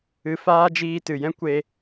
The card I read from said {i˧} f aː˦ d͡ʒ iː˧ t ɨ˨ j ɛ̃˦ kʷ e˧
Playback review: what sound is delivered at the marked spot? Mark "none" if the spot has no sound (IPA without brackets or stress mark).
ɨ˧